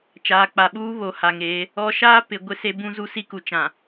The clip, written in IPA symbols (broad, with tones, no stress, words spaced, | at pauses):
t͡ʃaː˨k͡pa˨ɓuː˦ βo˨ ha˨ŋeː˨˦ | ɔ˦ ʃaː˦ pɪ˨ ɡʷɪ˦se˦ bũ˦ zu˦si˦ku˨ t͡ʃã˨